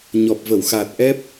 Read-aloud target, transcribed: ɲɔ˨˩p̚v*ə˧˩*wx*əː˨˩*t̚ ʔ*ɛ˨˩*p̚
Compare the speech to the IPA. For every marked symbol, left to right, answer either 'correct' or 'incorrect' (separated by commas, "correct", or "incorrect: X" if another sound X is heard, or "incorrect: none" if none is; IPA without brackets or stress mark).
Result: correct, incorrect: aː˨˩, incorrect: ɛ˦˥